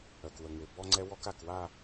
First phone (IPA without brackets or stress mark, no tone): œ